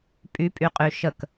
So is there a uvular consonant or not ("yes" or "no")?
yes